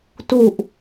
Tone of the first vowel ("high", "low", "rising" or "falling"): low